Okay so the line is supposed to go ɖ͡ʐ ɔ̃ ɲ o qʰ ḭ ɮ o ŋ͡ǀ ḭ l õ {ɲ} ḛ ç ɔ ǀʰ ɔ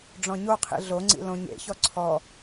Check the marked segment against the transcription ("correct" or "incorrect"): correct